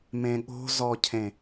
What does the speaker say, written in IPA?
m ẽ ɠ o̤ z ɔ cʰ ẽ

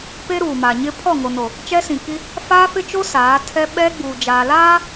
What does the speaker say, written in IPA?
p e˦ ɾ uː˨ m a˨ ɲ ɪ˦ pʰ ɔ˦˨ ŋ o˨ n o˨ | t͡ʃ ɛ˦ s ĩ˨ k i˦ | f aː˦ f ɪ˦ t͡ʃ o˦ s aː˨˦ tʰ ɛ˦ ɓ ɛ˦ ɡ͡b uː˨ d͡ʒ aː˨ l aː˦

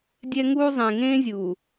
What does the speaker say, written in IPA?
dʲ ɛ˦ ŋ uː˦ zˤ ẽ˨ ŋ ẽː˦ zʲ uː˨

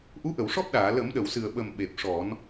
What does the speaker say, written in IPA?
ʔ u˧˥ ʔ ə˨˩˨ w ʂ ɔ˦˥ p̚ ɗ aː˨˩˨ l ə˨˩˦ m ɗ ə˨˩˨ w s ɨ˨˩ ə̯ ɓ ə˨˩ m ɓ e˨˩ p̚ ʂ ɔ˨˩˦ n

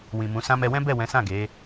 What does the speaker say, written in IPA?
w ĩ˨ m ũ˨˦ s ã˧ m ɛ˧ w ɛ̃˦ b ɛ˦˨ w ɛ̃˨˦ s ã˦˨ ɡ e˨˦

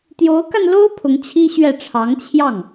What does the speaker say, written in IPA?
t̪ j o˧˥ ʊ̯ k a˧ n l o˥ ʊ̯ pʰ ʊ˧˥ ŋ t͡ɕʰ i˥ ɕ ɥ ɛ˥˩ ʈ͡ʂʰ ɑ˧˥ ŋ t͡ɕʰ j ɑ˥˩ ŋ

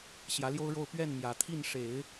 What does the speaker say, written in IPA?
ɕ j ä˧˥ l j o˥ ʊ̯ ɻ o˥˧ ʊ̯ p ɥ ɛ˥˩ n m j ä˨˩ t̪ʰ i˥˩ n ʂ e˨˩˦ ɪ̯

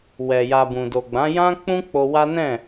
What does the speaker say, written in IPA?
w ɛ˨ j a˨ b ũ˨ d o˨ ɡ͡b ã˨˦ j ã˦ k͡p ũ˦ k͡p o˧ w a˦ n ɛ̃˦˨

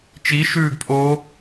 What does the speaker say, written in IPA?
t͡ʃ i ʃ ʉː ɡ pʼ oː

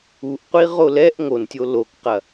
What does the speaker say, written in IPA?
u ʔ qʷ i ʁ o l ɛ ʔ ŋ o n tʲ o l o k q ɐ

